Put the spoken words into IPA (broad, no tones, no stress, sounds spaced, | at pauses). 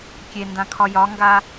kʲ e n d ã kʰ ɒ j ɒ ŋ ɡ a